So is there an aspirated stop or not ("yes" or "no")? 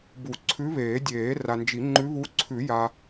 yes